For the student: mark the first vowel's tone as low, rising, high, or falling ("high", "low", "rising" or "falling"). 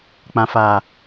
low